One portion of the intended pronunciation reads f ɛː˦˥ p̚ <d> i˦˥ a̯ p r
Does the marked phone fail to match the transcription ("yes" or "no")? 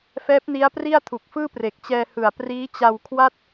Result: yes